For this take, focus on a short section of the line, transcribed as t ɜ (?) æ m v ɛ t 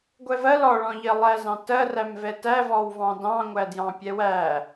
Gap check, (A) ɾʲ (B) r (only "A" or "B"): B